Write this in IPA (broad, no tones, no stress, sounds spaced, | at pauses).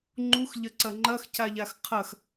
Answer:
ŋ͡ǃ u x ʎ ɐ ǀ ɐ ŋ͡ǃ ɐ x c a ʎ a x qʰ ɐ x